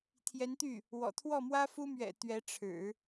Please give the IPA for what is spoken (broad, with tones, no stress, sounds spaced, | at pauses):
t̪ʰ j ɛ˧˥ n t̪ y˥˩ | w ɔ̰˨˩ t̪ʰ w ɔ˥˩ m w ä˥ f u˥ m ɥ ɛ̰˨˩ t̪ ɥ ɛ˧˥ ʈ͡ʂʰ ɻ̩˨˩˦